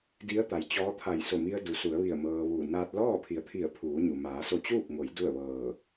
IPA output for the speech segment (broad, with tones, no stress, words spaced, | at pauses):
di˧˥ə̯t̪a˩jt͡ɕɔː˧˥t̪ʰa˧˩j so˧˩mi˧ə̯ du˩˧su˩˧ə̯ ʋi˧˩ə̯mɤː˧ʋuː˧˩ naː˧t̚lɔː˥˨pʰi˩˧ə̯t̪ʰi˧˩ə̯ pʰuː˩˧ɲu˩ maː˩˧so˧t͡ɕuː˥˨p̚ŋo˩˧j du˥˨ə̯ʋɤː˧˩